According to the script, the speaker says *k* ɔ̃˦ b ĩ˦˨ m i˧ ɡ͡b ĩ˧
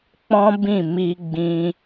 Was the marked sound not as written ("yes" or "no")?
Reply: yes